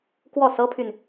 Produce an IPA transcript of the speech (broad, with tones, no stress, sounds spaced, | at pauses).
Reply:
k w ɔ˥˩ s ɤ˥ pʰ y˨ n